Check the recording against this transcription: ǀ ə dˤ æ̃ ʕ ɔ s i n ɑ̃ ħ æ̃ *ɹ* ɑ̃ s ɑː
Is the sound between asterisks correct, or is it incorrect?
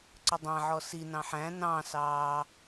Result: incorrect: n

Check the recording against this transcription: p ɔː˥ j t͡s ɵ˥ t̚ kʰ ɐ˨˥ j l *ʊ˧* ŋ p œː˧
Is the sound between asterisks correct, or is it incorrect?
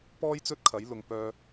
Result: incorrect: ʊ˨˧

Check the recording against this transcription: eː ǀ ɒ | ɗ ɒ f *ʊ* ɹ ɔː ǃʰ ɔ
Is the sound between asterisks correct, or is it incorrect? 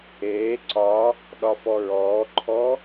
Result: incorrect: ɔ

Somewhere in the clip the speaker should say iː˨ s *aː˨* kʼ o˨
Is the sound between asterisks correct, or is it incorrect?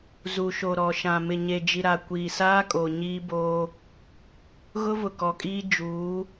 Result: incorrect: aː˦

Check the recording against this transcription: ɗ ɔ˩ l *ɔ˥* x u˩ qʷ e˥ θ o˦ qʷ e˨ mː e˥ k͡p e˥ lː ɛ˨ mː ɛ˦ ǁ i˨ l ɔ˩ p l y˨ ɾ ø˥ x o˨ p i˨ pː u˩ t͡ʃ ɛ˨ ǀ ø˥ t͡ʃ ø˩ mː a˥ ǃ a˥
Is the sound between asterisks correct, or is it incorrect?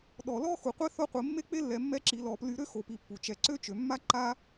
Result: correct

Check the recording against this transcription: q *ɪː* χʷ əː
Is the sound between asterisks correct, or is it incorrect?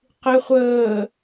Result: incorrect: ɪ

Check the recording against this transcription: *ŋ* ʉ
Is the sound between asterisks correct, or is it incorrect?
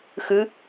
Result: incorrect: x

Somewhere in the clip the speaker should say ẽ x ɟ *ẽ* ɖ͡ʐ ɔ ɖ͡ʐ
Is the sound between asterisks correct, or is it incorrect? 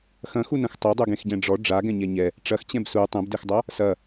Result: incorrect: ɛ̃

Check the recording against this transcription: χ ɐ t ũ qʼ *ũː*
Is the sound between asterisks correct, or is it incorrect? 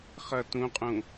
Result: incorrect: ũ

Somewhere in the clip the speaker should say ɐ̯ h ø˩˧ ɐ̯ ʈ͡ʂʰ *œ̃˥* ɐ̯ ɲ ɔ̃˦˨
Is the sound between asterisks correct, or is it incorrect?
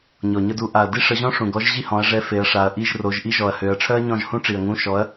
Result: incorrect: œ˥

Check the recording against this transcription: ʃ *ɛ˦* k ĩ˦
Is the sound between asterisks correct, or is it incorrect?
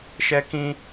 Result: correct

